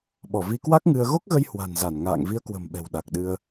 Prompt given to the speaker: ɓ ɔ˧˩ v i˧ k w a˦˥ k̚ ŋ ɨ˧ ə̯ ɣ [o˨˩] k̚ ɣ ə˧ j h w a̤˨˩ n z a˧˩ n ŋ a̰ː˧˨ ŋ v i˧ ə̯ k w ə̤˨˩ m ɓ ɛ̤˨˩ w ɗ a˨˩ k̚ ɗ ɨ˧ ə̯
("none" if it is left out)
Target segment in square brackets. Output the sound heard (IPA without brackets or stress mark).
o˦˥